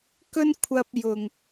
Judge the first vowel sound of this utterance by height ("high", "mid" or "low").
mid